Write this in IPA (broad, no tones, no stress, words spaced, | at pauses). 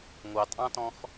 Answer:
ŋʷɑtʼɑ̃tɔ̃x